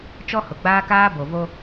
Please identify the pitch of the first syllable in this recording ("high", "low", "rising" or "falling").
high